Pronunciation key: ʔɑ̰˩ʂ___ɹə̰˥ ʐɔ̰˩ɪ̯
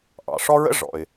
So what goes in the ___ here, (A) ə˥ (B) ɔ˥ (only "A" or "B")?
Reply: B